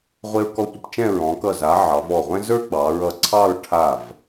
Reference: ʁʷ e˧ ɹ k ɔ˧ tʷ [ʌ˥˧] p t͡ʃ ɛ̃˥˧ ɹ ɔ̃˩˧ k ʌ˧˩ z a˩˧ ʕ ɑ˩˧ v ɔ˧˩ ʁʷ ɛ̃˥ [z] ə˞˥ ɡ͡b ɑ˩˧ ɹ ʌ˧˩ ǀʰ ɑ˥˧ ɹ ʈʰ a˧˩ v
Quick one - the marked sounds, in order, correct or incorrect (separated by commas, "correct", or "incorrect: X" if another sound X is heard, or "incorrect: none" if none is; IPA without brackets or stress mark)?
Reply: incorrect: ʌ˧, correct